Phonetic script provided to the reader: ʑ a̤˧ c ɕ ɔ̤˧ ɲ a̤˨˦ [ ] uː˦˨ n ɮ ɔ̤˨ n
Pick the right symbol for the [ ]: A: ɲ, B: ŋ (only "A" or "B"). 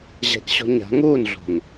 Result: B